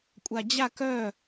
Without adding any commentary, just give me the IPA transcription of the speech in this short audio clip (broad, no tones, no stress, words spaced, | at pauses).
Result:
kʷʼad͡ʑa kœ